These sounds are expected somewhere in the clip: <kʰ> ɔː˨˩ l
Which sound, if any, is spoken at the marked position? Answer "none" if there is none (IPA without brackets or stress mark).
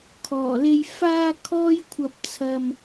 kʰ